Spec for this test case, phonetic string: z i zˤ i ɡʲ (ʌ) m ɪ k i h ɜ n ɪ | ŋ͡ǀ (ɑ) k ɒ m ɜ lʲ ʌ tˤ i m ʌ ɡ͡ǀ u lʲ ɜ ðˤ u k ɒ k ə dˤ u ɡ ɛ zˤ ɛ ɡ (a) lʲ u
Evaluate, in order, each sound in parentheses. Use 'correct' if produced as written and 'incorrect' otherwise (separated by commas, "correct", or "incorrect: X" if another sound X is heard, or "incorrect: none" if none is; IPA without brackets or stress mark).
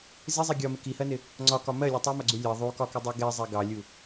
incorrect: ɒ, incorrect: ɒ, incorrect: ɑ